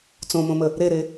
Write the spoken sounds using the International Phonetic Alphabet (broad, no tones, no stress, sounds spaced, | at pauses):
t͡s õ m õ m ə | ɾ e ɾ e